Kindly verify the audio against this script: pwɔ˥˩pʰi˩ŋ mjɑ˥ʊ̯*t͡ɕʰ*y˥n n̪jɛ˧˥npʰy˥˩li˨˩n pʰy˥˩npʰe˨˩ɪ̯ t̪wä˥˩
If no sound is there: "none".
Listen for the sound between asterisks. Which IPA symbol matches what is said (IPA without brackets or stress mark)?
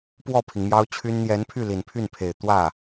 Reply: t͡ɕʰ